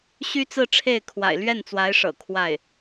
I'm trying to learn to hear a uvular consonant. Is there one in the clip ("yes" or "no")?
no